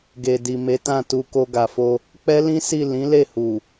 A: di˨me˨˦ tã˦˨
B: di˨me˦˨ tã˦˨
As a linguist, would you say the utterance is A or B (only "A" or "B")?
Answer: A